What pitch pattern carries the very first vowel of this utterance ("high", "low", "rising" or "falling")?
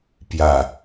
low